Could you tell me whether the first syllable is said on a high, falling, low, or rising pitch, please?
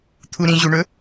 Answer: low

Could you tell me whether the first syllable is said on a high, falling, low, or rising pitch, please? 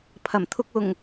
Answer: low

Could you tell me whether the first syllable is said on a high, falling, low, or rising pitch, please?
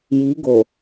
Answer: rising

